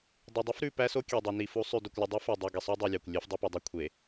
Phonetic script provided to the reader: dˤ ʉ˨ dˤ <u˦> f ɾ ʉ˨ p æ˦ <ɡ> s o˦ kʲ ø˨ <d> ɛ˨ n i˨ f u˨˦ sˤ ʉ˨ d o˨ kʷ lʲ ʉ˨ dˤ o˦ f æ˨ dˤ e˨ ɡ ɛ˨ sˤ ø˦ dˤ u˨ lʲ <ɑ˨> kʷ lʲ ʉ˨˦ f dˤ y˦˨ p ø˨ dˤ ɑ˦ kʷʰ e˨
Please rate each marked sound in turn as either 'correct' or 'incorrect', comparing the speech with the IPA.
correct, incorrect, incorrect, correct

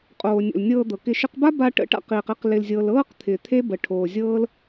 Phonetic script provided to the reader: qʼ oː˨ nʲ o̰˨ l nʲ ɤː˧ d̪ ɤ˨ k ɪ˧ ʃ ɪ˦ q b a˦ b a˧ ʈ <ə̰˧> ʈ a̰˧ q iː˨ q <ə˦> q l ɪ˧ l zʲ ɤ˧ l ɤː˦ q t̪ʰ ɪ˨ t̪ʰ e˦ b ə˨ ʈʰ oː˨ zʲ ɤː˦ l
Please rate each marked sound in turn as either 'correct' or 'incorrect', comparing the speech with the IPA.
correct, incorrect

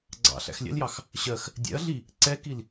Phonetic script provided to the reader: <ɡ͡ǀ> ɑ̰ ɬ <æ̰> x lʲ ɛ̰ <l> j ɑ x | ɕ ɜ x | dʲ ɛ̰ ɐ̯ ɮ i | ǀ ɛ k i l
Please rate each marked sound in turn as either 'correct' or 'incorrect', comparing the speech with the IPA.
correct, correct, correct

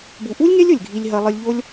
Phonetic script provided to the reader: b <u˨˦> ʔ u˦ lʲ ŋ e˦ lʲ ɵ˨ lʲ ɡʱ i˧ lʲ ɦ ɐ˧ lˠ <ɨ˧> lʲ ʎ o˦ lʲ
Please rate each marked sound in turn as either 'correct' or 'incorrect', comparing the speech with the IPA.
incorrect, correct

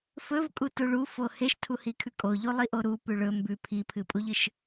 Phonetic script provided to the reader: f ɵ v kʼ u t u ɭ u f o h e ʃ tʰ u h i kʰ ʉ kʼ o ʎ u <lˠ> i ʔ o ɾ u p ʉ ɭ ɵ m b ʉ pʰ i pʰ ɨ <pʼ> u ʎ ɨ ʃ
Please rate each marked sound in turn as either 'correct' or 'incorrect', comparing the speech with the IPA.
correct, correct

